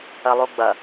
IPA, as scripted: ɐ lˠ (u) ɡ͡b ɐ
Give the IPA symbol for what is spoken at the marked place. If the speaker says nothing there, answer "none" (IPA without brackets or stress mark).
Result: u